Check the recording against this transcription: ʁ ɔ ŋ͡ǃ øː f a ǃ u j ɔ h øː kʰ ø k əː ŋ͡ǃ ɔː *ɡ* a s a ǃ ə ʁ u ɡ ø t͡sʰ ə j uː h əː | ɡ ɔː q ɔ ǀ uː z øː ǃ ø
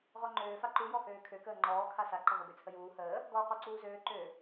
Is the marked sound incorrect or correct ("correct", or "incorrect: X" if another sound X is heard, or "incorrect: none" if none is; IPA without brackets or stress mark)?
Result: incorrect: kʰ